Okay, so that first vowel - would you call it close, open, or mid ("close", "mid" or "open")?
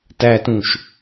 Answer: open